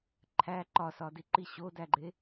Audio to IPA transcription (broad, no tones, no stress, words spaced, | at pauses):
ǃʰæ ǃɒsɒdi ǃiɕodæɡ͡ǃe